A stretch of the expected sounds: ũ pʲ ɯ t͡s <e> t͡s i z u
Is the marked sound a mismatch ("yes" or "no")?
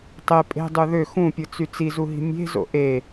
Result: yes